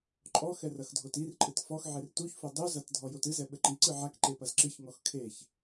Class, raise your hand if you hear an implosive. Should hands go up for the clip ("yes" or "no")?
yes